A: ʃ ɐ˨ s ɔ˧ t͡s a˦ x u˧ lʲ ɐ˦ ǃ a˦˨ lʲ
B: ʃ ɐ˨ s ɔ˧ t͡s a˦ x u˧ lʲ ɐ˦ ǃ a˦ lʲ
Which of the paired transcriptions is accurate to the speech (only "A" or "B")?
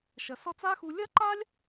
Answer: B